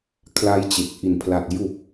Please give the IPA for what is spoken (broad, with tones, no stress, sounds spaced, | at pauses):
kʰ l a˧ j t͡ɕ e˨˩ k̚ ʔ i˨˩ n pʰ l a˨˩ t̚ j u˨˩ k̚